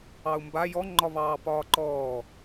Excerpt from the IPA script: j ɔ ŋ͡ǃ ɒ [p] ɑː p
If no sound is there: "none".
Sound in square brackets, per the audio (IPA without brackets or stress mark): β